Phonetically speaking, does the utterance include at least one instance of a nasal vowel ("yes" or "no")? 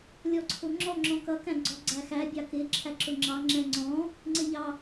yes